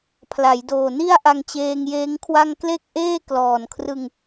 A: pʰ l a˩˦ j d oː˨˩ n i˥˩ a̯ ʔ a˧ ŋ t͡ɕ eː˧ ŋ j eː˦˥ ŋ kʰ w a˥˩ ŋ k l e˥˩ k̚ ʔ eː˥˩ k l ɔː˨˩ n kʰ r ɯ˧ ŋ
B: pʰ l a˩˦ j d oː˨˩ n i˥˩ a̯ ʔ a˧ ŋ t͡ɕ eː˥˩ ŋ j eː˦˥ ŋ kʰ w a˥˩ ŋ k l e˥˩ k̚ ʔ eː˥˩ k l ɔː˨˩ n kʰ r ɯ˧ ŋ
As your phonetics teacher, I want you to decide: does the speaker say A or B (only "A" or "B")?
A